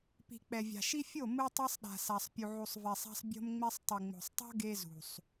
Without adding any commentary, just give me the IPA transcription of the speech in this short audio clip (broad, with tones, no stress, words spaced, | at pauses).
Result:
pi̤˨k͡pɛ˨vʲa̤˨ʃi˦ fʲo˦˨ mɯ˦tˤʌ˦sˤɗa̤˨sa˨sˤ pʲu˨ʕu˨sˤ vɛ˨sˤa̤˦sˤ bʲo̤˦mŋ͡me˦sˤ tˤɯ˨ŋ͡mo̤˨sˤtˤo̤˦ ɡe˦zṳ˨sˤ